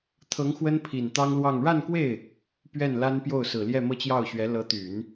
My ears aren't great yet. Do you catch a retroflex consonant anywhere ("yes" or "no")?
yes